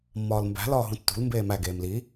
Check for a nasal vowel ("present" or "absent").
present